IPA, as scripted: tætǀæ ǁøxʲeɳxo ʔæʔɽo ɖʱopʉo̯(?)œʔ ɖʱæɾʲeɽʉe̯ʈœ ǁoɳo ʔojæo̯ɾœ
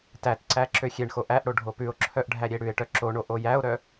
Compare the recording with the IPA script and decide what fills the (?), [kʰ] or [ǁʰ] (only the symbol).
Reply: ǁʰ